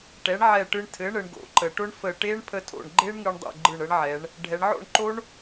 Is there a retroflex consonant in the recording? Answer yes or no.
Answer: yes